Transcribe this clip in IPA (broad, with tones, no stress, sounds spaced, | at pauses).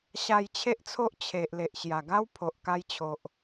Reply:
ɕ a˧ j t͡ɕʰ e˦ ʔ t͡sʰ o˦ ʔ t͡ɕʰ e˨ ʔ l e˨ ʔ ɕ j a˨˩ ɡ a˦ w pʰ o˨ ʔ k a˧ j t͡ɕʰ o˨ ʔ